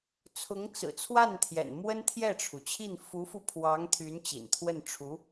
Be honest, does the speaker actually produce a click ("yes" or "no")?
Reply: no